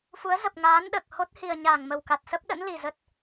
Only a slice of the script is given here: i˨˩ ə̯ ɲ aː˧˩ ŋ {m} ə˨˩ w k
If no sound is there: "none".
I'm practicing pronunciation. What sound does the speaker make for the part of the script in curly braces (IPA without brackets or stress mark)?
m